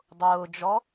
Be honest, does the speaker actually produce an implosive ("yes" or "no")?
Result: no